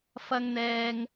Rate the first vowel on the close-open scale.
open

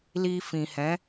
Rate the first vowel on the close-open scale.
close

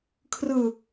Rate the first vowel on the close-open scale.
close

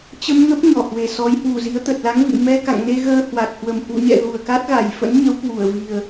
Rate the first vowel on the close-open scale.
mid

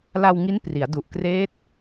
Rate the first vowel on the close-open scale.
open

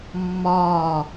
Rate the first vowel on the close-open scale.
open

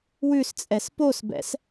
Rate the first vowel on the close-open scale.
close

